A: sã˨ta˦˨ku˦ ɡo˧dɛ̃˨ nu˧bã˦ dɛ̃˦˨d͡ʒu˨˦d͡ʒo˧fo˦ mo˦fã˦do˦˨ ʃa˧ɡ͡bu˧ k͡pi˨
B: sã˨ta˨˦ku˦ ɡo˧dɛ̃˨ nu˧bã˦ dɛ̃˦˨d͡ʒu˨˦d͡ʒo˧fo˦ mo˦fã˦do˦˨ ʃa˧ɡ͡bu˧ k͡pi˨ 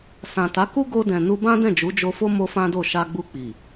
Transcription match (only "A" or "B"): B